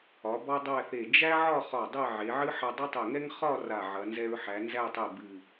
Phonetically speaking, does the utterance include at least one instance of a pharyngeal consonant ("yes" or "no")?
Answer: yes